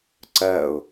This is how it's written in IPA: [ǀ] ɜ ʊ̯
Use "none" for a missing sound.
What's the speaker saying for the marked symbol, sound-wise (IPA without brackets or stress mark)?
ǀ